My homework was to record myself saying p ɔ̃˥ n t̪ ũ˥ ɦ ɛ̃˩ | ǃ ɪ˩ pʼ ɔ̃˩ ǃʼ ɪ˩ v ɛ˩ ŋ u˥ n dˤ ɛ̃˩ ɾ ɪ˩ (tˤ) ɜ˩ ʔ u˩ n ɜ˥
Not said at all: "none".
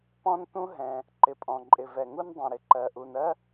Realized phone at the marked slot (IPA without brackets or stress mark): ǃ